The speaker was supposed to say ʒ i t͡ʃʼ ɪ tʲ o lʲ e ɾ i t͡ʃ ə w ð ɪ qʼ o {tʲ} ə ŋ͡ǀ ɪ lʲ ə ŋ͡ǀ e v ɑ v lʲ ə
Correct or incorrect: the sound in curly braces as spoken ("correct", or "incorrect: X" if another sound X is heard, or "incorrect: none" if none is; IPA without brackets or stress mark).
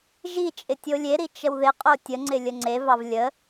correct